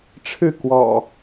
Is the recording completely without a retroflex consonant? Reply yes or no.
no